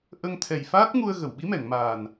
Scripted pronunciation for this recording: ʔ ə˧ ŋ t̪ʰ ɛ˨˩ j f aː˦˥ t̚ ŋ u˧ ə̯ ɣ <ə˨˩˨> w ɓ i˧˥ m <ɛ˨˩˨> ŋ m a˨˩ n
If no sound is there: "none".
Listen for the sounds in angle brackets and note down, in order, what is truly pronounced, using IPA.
ə˨˩˨, ɛ˨˩˨

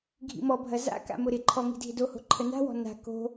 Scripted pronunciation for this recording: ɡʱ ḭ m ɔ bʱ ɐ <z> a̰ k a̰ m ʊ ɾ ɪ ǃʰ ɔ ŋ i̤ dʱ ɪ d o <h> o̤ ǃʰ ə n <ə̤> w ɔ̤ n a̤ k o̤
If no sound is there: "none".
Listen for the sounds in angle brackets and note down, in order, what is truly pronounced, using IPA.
z, h, a̤

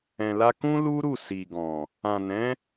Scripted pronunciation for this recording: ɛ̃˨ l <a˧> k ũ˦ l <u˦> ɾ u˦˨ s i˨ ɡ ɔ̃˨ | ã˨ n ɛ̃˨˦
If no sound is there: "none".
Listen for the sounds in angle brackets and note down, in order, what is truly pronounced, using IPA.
a˧, u˦

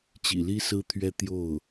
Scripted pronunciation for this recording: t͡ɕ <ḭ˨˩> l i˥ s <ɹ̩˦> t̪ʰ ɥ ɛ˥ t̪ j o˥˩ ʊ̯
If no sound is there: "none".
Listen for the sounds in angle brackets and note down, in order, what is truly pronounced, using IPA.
ḭ˨˩, ɹ̩˥

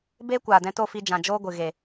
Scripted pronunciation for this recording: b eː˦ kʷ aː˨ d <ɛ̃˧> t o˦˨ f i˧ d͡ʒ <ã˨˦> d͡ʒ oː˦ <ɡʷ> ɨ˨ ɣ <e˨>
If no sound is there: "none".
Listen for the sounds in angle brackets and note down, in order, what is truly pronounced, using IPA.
ɛ̃˧, ã˨, ɡʷ, e˨

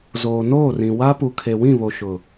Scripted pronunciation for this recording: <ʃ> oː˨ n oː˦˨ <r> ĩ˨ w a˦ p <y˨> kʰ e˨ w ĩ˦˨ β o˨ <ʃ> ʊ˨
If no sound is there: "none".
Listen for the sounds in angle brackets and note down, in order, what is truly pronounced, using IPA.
z, r, u˨, ʃ

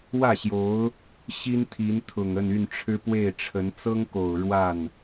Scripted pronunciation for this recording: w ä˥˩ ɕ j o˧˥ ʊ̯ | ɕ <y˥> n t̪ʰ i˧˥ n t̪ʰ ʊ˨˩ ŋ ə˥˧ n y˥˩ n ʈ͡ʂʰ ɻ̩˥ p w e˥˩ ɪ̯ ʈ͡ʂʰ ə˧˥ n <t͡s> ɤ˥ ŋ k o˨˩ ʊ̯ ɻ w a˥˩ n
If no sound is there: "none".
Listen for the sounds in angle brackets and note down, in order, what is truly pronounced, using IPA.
i˥, t͡s

